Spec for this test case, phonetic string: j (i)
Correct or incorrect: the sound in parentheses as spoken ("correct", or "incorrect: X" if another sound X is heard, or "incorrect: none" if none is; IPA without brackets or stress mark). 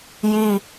correct